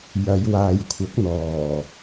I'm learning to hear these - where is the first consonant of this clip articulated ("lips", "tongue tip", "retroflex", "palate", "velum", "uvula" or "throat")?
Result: palate